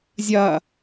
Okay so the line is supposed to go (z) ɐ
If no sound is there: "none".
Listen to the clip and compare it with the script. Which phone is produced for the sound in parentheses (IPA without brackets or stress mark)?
zʲ